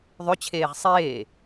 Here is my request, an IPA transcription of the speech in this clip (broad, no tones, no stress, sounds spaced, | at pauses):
ðˤ ʏ t͡ɕʰ eː ʁ sˤ eː